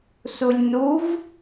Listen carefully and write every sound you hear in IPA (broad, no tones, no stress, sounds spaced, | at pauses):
s u lʲ n u v